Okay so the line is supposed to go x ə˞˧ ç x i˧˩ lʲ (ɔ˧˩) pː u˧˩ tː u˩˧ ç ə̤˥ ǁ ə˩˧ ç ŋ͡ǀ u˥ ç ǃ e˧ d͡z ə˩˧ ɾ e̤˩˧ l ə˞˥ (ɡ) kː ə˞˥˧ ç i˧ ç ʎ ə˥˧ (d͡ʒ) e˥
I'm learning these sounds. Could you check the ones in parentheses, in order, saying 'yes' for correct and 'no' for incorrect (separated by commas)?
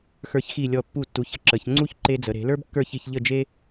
yes, no, yes